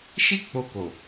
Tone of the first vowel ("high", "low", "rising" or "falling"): high